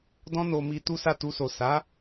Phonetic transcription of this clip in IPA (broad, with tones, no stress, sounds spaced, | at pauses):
d ɔ̃˦ n o˧ m i˧ t u˦ s a˦˨ t u˧ s o˨ s a˨˦